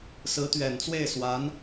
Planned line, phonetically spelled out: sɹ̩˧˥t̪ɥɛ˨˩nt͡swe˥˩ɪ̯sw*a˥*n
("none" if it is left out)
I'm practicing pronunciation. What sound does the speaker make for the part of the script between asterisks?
a˧˥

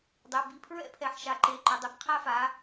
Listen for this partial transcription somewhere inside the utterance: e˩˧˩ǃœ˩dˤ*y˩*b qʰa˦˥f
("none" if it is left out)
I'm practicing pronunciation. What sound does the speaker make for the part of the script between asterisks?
i˩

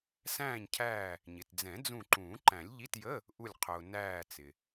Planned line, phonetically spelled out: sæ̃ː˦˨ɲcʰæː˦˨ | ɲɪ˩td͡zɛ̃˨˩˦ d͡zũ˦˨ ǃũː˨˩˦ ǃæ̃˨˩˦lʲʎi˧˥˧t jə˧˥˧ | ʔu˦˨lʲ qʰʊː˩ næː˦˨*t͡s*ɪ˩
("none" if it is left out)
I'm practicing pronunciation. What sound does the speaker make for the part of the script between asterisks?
t͡s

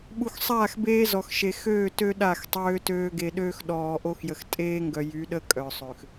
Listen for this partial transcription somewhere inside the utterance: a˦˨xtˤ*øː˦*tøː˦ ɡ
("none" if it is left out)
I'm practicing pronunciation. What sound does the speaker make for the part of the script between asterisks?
øː˦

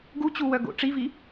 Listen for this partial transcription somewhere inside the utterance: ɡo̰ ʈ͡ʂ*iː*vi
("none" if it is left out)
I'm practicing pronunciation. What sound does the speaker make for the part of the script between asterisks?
i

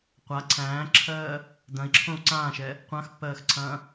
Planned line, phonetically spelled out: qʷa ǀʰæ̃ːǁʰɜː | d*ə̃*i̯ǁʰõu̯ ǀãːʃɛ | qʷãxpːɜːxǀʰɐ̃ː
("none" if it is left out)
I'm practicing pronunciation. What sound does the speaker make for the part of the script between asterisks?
ɐ̃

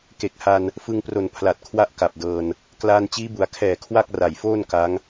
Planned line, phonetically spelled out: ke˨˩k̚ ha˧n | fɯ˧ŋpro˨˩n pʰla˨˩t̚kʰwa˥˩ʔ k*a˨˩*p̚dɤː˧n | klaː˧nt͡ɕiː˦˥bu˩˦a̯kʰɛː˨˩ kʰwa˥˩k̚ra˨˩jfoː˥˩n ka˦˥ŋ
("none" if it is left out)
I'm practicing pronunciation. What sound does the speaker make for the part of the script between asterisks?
a˨˩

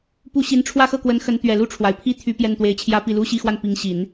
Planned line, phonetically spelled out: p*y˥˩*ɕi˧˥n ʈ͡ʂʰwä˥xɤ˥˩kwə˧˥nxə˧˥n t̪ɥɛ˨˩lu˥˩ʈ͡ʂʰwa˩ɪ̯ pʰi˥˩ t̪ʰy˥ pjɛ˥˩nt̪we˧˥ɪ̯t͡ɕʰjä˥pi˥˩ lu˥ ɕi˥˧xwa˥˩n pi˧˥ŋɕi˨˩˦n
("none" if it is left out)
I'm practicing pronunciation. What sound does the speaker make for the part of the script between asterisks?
u˥˩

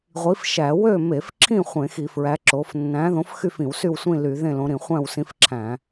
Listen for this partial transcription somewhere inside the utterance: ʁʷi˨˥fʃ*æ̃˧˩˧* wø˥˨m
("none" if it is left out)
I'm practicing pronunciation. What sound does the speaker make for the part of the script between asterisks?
æ˧˩˧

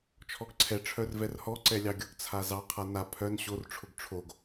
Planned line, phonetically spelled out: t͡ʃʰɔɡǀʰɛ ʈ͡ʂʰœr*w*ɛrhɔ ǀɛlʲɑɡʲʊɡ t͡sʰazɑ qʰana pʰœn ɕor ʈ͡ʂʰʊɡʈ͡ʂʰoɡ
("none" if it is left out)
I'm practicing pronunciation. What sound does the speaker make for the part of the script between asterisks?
v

